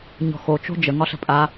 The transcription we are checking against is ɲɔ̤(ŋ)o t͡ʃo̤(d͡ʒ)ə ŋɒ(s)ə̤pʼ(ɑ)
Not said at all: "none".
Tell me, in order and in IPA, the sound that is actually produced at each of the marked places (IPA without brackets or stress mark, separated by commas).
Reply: x, d͡ʒ, ɬ, a